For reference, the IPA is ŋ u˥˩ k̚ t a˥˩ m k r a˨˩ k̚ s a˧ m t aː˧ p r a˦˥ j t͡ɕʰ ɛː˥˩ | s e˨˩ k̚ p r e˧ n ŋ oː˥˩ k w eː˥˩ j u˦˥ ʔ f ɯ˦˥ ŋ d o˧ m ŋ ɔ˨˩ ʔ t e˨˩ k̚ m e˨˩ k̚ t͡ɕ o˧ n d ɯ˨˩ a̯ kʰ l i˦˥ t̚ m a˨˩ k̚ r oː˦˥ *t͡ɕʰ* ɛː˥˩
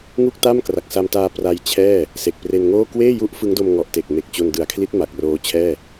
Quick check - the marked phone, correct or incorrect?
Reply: correct